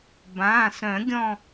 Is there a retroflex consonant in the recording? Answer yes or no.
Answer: no